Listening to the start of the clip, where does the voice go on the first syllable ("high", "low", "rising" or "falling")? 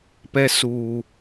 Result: high